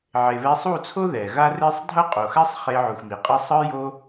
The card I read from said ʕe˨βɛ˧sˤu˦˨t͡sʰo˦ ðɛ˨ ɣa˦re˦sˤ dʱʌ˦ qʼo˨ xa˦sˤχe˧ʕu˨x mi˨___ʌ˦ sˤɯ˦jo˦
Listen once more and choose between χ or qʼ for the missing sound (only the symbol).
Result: qʼ